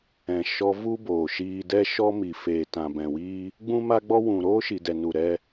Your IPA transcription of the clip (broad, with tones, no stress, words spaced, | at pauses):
ɛ̃˨ʃɔ˧ vu˦boː˨ ʃiː˧dɛ˦ ʃɔ˦mi˨feː˨ tã˨bɛ̃˨wiː˦ | ɡ͡bũ˦ma˦ɡ͡bɔ˦ wũ˨ ɾoː˦ ʃi˨dɛ˨ nu˨ ɾɛ˧